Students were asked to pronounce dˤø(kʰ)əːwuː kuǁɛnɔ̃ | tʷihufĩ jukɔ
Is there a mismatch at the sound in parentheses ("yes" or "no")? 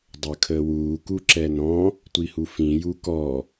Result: no